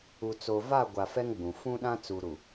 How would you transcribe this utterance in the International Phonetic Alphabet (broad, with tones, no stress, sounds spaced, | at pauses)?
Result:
u˨ t͡s o˨ v a˦˨ ɡʷ a˨ f ɛ˦ ŋ ɡ͡b ũ˨ f ũ˦ ɗ ã˦ t͡s u˨ ɾ u˨